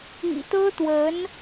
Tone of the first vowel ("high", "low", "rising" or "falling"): low